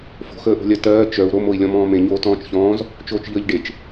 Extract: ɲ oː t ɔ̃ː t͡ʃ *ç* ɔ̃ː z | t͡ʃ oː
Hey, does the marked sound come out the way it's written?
yes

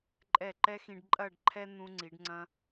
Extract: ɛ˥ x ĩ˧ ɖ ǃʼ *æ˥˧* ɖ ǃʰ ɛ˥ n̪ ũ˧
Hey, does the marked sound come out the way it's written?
no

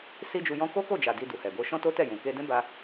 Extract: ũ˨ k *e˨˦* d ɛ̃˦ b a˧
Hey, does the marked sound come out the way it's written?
no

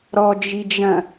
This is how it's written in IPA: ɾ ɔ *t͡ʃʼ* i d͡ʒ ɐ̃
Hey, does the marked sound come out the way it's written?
no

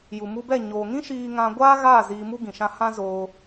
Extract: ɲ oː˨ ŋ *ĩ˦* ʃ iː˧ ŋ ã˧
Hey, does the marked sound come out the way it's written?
yes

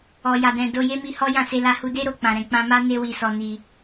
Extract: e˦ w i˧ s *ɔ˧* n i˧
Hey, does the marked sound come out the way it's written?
yes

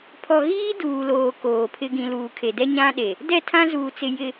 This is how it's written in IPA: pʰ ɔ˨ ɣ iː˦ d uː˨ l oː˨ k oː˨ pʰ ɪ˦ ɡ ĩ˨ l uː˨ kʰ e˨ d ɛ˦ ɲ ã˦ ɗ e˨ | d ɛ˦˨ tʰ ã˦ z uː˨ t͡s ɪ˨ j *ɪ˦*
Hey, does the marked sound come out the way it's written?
no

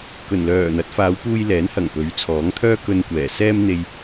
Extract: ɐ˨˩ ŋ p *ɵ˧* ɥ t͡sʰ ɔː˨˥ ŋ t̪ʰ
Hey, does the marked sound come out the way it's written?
no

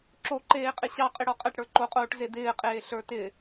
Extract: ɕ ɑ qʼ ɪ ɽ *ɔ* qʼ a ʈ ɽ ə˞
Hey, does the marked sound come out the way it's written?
yes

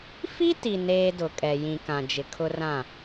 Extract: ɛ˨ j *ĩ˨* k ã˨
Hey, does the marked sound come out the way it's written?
yes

